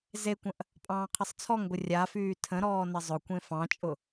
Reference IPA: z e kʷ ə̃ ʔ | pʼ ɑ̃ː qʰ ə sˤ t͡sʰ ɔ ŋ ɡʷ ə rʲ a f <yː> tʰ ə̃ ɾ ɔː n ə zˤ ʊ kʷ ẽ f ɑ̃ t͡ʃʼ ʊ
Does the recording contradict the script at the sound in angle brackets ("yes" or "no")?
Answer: no